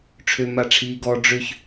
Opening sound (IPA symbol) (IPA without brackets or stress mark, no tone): ʈ͡ʂʰ